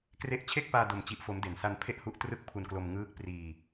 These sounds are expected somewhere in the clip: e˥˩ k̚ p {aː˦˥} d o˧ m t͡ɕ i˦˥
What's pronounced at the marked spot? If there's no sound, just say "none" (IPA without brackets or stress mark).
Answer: aː˧